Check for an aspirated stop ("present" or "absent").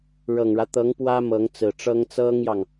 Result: absent